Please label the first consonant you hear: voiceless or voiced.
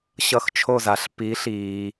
voiceless